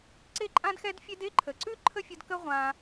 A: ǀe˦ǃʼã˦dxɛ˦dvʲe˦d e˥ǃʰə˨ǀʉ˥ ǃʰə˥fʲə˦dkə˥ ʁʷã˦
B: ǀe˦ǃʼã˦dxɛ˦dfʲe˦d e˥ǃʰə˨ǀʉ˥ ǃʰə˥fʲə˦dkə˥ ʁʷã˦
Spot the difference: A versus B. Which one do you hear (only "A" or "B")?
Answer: B